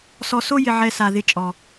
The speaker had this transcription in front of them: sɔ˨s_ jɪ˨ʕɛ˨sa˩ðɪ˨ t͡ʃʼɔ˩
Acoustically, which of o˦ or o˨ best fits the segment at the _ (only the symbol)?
o˦